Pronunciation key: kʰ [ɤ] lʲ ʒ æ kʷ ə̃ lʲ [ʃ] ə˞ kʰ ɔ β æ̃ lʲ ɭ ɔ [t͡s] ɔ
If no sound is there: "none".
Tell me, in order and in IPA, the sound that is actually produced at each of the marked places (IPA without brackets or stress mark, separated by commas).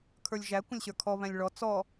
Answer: ə˞, ɕ, t͡s